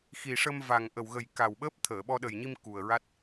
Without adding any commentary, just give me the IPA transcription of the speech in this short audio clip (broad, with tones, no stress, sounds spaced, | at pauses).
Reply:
x i˨˩ ʂ ə˧ m v a˨˩ ŋ ʔ ə˨˩ w ɣ ə˨˩ j k a˨˩ w ɓ əː˦˥ p̚ t̪ʰ əː˨˩˨ ɓ ɔ˧ ɗ ə˨˩ j ɲ i˧ m k u˨˩ ə̯ ɹ a˦˥ t̚